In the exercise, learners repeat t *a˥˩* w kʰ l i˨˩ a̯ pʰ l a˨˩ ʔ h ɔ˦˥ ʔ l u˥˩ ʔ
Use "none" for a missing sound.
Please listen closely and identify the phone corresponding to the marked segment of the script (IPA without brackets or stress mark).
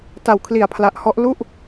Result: a˨˩